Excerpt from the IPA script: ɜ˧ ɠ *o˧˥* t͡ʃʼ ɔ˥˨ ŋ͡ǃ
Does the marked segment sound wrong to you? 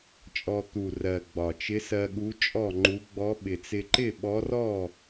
yes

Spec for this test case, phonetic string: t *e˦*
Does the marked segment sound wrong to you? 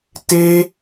no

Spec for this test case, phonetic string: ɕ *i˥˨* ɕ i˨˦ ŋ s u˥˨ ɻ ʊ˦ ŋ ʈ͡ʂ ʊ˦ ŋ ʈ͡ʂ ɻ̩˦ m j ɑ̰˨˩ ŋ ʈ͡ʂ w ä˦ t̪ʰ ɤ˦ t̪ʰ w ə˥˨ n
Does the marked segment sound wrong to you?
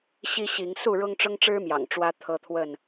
yes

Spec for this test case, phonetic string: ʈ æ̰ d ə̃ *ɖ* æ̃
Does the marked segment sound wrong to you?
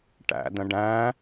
no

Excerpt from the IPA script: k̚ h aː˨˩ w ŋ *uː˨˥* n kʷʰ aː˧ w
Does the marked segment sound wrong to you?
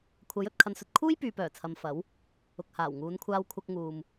yes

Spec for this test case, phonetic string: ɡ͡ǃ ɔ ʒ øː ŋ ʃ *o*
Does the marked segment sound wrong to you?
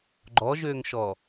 yes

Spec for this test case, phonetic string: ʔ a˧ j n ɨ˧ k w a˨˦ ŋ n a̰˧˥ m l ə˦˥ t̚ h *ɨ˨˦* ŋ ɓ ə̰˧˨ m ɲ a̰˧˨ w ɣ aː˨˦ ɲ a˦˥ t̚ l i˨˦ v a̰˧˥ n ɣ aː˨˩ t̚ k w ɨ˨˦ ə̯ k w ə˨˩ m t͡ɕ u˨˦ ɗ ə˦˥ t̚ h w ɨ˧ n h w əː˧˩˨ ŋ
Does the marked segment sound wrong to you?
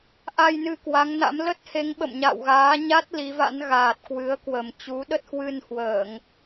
yes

